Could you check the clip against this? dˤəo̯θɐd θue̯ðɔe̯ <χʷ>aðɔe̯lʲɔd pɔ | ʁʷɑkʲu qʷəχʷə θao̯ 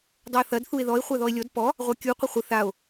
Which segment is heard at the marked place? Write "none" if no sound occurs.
χʷ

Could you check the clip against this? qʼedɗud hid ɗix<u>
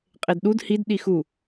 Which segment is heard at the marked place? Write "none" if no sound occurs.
u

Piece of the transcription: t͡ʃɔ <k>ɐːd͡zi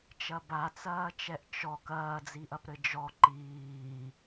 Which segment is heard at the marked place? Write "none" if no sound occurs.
k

